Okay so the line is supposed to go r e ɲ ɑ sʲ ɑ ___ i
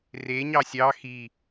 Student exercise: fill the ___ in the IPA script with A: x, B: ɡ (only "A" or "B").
A